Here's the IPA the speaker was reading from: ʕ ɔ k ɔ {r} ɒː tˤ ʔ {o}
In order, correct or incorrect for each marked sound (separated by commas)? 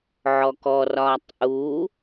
correct, incorrect